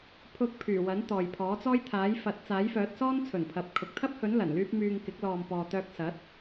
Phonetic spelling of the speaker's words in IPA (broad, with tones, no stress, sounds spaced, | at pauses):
pʰ ʊ˧ k̚ pʰ yː˨˩ w ɐ˨˥ n t̪ ɔː˨ j pʰ ɔː˨˥ t͡s ɔː˥ j t̪ʰ aː˨˥ j f ɐ˨˥ t̚ t͡s aː˨˥ j f œː˨˥ t̚ s ɔː˥ n t͡sʰ ɵ˨˩ n pʰ ɐ˨ p̚ kʰ ʊ˨ k̚ t̪ʰ ɐ˥ p̚ h ɵ˨˥ n l ɐ˨˩ n l yː˥ p̚ m yː˧ ŋ k ɪ˨˥ k̚ l ɔː˨ m p ɔː˨ t̪ œː˧ k̚ s ɐ˨˥ t̚